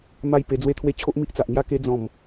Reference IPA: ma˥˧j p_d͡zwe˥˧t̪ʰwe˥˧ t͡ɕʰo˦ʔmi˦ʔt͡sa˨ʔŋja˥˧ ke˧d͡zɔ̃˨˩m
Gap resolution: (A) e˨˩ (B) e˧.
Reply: B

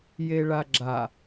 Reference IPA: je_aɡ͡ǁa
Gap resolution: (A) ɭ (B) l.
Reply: A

